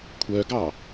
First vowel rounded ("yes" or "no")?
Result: yes